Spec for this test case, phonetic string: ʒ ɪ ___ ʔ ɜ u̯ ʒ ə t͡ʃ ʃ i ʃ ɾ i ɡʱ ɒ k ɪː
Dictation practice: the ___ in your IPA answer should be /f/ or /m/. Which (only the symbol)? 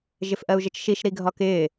f